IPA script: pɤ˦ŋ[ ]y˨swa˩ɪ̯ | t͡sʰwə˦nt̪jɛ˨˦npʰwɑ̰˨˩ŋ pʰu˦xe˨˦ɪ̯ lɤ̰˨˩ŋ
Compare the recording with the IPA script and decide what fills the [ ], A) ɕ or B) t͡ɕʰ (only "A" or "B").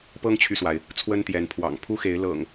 B